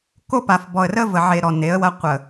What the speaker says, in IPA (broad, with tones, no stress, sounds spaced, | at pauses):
k o˦ p a˨ f b ɔ˨ ə̯ r ə˦ v ə˨ ʕ e˨ ɾ ɔ˨ n e˨˦ ə̯ w ɐ˦ qʷ ə˨